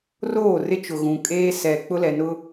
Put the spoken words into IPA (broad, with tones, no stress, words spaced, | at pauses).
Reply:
roː˦˨rɪ˦ t͡ʃʊ˨ ɣũ˨kʼeː˦ sɛ˨ k͡pʊ˦lɛ˨nʊ˦